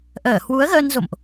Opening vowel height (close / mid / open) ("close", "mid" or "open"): mid